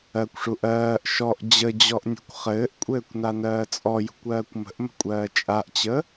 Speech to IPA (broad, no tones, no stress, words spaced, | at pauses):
ɜkʷʂu ʔɜːʔ ʃɔʔ d͡ʑəd͡ʑɔʔnʲṳkʷ χɘːʔkʷʼɘːkʷnanɜː t͡sʼɔjṳkʷɜːkʷ mə̤ʔmə̤kʷʼɜː t͡ʃʼaʔt͡ɕə